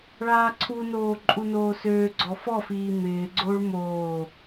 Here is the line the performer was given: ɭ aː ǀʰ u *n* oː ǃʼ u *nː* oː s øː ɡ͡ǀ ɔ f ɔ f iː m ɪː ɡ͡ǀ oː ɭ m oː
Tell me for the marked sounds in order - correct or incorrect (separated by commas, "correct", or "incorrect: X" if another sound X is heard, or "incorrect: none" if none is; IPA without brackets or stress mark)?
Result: correct, incorrect: n